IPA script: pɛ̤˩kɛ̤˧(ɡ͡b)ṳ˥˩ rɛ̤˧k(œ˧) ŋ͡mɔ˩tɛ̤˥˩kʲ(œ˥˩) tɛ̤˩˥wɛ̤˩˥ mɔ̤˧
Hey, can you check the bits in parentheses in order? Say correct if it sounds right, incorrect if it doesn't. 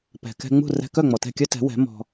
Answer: incorrect: ŋ͡m, incorrect: œ˥˩, incorrect: œ˥

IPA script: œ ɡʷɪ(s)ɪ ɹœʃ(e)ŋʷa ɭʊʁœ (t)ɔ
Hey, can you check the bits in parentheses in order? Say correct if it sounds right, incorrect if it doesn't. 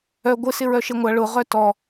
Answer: correct, correct, correct

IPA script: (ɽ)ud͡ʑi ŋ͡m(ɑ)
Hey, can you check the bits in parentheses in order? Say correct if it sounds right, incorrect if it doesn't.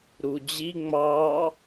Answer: incorrect: ɾ, correct

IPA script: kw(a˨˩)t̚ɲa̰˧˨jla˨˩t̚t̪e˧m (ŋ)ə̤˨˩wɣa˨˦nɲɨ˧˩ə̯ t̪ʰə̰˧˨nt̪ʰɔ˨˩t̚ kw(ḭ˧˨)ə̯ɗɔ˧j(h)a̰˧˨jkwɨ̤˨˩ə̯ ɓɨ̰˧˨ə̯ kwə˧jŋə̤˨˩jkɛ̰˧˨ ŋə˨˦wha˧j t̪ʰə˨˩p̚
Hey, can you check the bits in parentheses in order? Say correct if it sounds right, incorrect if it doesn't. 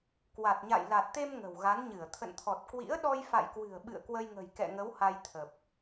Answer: correct, correct, incorrect: ḭ˧˥, incorrect: f

